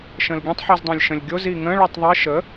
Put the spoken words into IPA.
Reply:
ʃ ə̃ l ɡʲ ə̃ tˤ ħ i z dˤ ĩ lʲ ʃ ə̃ lʲ ɡʲ o z i ŋ ə̃ ɭ ʉ tˤ ðˤ i ʃ ə

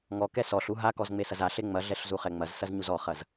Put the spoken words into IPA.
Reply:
ŋ ɔ k ɛ s ɔ ɬ u ɦ a k ɔ z ŋ͡m e s ɐ z a ɬ e ŋ͡m ɐ ɮ ɛ ɬ z u χ ɛ ŋ͡m ɐ z s ɐ z ɲ u z ɔ χ ɐ z

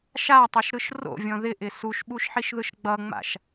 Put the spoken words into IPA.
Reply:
ʃ a tˤ ɯ ʃ ɾ ɯ ʃ r o̰ vʲ ɔ̃ ð ɪ ʔ ɪ s u ʃ ɓ u ʃ ħ i ʃ ð ɯ ʃ ɡ͡b ʌ ŋ͡m a̰ ʃ

